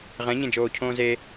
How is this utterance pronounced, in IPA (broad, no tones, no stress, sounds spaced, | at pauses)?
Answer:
ʁ ɛ̃ ɲ ẽ d͡ʒ oː cʰ õː z e